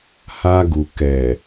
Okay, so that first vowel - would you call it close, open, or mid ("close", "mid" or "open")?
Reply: open